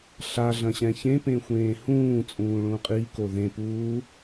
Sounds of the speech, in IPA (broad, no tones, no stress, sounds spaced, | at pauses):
ɬ a ɮ ɐ̃ ɕ ɛ̃ ç ẽ p ẽ xʷ ẽː h ũː t͡sʼ ũː ɭ ũ qʼ i k o ð ẽ p uː